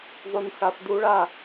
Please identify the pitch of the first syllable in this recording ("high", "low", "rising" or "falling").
low